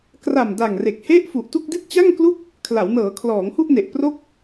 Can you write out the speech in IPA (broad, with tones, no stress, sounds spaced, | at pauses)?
k r a˨˩ m d a˨˩ ŋ r e˨˩ k̚ h e˥˩ ʔ f u˨˩ ʔ t u˥˩ k̚ d i˥˩ t̚ t͡ɕ a˥˩ ŋ k l u˥˩ k̚ | kʰ l a˩˦ w n ɤː˩˦ kʰ l ɔː˩˦ ŋ h u˥˩ ʔ n e˨˩ ʔ p r o˥˩ k̚